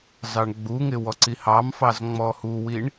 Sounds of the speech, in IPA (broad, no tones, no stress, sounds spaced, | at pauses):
z ɑ ɳ ɡ͡b u ŋ ɪ w ɔ ǀ i h ɑ m f ɑ z ŋ͡m ɔ h u w i ɳ